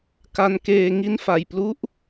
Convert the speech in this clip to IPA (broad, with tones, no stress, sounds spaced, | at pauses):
k a˧ n k eː˧ ŋ i˦˥ n f a˨˩ j p l u˦˥ ʔ